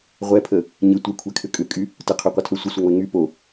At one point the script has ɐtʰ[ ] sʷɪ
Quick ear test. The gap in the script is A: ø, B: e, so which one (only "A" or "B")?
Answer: A